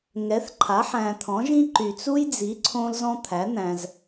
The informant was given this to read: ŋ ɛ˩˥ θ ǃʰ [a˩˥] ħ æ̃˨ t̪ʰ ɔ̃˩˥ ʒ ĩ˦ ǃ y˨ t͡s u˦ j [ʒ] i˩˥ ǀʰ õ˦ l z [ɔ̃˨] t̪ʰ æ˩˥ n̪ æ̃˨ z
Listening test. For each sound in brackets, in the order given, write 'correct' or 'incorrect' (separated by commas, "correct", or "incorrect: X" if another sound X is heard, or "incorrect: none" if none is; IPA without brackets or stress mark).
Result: correct, incorrect: d͡z, incorrect: ɔ̃˦